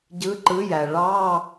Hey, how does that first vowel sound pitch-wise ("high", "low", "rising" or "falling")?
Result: rising